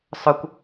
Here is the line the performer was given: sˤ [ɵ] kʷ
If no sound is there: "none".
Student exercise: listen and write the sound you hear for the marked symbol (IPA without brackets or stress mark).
ɵ